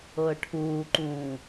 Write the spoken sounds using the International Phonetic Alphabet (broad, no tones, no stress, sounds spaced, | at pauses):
ɤ ə̯ ʈʰ uː ǃ ũː